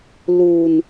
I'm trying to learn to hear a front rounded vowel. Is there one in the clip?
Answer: no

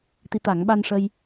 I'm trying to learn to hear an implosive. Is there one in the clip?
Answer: yes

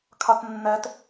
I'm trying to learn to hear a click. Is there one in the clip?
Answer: no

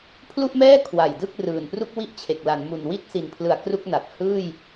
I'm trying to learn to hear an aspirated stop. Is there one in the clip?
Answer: yes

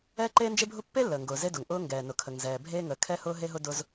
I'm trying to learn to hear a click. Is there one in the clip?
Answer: yes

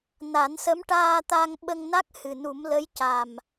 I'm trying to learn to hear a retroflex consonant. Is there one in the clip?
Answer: yes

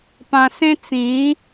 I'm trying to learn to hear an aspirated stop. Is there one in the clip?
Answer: no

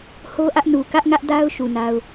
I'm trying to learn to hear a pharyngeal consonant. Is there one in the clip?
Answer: no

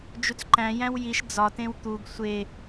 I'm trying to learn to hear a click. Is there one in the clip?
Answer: yes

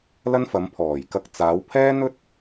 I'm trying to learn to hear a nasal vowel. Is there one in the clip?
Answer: no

